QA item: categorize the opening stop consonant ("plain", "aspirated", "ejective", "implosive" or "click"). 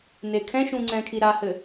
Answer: aspirated